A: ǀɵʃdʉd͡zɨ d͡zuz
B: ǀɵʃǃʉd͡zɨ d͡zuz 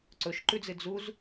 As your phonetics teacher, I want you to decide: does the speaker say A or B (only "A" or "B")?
B